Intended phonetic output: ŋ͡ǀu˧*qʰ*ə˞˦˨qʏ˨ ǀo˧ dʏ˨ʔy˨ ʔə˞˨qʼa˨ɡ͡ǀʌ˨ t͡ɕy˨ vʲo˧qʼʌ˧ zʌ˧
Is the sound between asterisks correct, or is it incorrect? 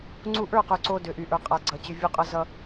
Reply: incorrect